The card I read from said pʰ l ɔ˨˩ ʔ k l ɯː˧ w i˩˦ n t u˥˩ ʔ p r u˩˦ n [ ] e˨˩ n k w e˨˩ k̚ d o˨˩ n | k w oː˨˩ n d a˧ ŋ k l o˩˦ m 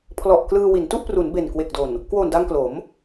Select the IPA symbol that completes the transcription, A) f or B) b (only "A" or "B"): B